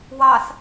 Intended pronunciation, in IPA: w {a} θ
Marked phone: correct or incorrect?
incorrect: ɑ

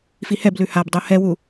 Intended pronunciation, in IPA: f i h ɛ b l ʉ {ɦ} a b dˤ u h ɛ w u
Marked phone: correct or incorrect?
incorrect: h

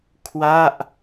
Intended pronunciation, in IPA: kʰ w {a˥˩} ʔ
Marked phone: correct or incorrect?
correct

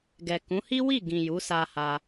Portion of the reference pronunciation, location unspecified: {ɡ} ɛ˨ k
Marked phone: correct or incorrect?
correct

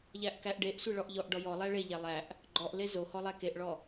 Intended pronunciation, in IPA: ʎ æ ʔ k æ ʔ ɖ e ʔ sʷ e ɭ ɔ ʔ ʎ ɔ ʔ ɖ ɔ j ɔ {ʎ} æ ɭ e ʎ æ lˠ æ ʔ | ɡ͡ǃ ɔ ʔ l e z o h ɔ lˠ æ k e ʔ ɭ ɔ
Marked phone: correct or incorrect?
incorrect: lˠ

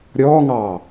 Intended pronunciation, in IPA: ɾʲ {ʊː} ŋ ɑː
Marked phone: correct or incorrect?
incorrect: ɔː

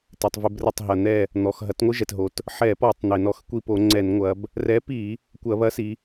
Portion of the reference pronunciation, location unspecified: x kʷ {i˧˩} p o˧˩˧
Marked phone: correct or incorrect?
correct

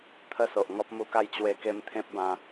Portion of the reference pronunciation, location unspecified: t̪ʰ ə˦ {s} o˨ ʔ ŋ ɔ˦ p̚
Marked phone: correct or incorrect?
correct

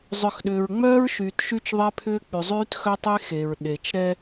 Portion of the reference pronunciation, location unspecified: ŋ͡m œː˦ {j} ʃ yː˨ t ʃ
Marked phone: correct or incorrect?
incorrect: ɹ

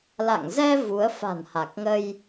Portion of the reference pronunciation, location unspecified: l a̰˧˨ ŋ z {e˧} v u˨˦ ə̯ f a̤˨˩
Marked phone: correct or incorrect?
incorrect: ɛ˧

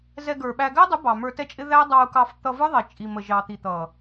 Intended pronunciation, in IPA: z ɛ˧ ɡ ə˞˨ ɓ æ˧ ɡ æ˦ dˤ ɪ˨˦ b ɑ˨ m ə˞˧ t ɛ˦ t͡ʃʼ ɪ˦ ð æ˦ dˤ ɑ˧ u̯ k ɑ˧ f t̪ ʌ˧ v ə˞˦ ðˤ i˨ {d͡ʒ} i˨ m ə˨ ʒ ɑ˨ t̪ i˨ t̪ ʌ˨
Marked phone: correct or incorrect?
incorrect: t͡ʃʼ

